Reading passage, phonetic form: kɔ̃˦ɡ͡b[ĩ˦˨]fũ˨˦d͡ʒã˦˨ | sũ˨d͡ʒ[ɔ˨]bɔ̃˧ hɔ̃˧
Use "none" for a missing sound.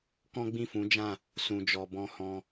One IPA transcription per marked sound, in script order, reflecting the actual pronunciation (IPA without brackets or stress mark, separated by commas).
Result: ĩ˦˨, ɔ˨